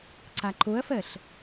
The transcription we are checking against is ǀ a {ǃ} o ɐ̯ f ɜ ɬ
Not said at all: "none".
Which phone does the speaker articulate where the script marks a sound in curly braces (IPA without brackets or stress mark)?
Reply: ǃ